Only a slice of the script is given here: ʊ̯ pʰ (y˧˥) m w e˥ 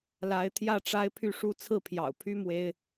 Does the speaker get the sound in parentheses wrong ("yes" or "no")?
yes